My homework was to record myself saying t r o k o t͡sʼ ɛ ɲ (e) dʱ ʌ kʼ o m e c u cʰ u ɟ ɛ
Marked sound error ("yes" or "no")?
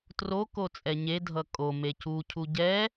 no